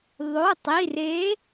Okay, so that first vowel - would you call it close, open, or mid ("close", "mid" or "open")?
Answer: mid